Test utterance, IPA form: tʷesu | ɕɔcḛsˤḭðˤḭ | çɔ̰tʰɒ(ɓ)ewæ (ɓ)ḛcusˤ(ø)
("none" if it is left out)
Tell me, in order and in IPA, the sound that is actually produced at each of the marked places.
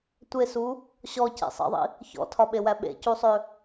ɓ, ɓ, ø

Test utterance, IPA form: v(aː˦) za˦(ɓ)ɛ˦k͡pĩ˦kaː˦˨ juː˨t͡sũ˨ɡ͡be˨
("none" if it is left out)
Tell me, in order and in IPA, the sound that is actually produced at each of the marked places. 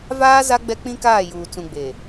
aː˦, ɡ͡b

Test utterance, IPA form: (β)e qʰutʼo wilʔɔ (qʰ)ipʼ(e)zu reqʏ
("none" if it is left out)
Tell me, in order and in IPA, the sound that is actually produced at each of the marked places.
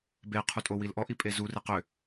b, ʔ, e

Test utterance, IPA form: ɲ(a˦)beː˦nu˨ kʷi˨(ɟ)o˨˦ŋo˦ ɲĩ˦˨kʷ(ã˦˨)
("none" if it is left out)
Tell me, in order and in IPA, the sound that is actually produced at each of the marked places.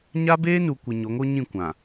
a˦, ɲ, ã˨

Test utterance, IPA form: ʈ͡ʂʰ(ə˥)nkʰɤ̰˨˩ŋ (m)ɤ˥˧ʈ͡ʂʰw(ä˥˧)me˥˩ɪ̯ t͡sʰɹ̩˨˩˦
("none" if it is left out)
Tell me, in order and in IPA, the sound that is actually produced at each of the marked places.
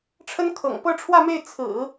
ə˥, p, ä˥˧

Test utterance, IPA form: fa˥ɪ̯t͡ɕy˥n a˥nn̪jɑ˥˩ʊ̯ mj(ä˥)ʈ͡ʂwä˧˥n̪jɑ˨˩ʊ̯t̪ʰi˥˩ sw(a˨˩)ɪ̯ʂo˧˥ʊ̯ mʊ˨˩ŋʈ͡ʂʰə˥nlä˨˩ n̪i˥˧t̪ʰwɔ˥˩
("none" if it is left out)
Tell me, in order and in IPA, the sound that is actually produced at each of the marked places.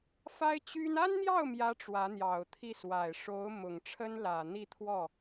ä˥, a˨˩

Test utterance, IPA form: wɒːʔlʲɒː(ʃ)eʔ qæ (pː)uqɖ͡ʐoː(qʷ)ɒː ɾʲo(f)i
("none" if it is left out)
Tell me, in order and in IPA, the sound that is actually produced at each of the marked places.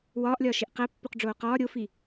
ʃ, pː, q, f

